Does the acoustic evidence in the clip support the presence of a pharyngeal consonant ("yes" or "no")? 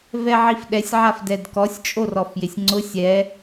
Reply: yes